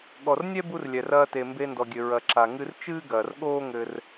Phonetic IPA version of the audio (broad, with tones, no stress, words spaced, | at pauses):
ɠɔ˨rnʲɛ˦bu˧r lʲɛ˨rɐː˧te˨ mbe˧ndɔ˨ɡʲɘ˨ ɹɐ˨ǁa˨ ŋɨ˧rt͡ʃɨː˦ɡɐː˨r ɠoː˦ŋɘ˧r